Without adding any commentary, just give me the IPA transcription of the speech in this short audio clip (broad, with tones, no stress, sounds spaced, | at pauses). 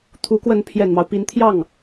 t̪ʰ u˧˥ k w ə˧˥ n pʰ j ɛ˨˩ n m ɑ˦ ʊ̯ p i˧˥ n t̪ʰ j ɑ˥˩ ŋ